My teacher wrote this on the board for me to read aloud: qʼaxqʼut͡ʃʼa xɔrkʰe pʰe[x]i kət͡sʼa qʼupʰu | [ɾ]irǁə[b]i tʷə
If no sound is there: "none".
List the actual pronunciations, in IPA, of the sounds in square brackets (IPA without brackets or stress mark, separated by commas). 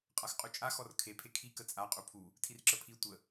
kʰ, tʰ, pʰ